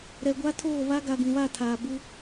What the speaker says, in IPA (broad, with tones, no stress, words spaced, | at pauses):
ɾɛ˨ɡʷa˦ tʰoː˦˨ βa˦ɡa˨ ɡũ˨βa˦˨tʰaː˨ bu˦